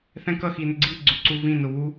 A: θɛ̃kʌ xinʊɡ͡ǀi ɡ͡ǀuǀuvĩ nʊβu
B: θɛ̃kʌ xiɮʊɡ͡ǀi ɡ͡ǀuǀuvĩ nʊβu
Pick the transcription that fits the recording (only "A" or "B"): A